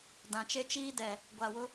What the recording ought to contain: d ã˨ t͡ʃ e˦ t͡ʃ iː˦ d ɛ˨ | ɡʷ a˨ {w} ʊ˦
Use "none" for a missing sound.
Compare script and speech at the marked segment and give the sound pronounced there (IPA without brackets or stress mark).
w